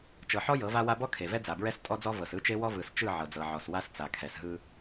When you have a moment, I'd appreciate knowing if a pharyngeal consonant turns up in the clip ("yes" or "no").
yes